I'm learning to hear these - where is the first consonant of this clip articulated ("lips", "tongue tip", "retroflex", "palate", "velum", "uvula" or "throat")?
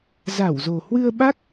tongue tip